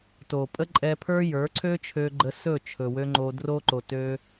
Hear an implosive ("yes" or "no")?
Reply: no